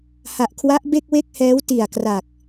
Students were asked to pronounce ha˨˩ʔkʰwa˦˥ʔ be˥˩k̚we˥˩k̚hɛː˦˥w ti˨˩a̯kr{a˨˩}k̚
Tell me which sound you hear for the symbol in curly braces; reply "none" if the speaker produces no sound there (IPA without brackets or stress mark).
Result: a˨˩